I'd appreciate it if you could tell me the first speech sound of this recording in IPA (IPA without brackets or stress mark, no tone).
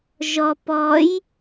ʒ